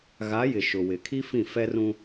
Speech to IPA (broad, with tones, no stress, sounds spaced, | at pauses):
ɣ a˨˦ j ɪ˨ ʃ ʊ˨ w ɪ˨ kʰ i˦ f ĩ˦˨ f ɛ˦ r ũ˦